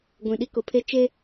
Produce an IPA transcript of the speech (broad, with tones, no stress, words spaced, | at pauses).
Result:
ɡʷĩ˨ɗi˦kʊ˨pʰe˦ t͡ʃe˦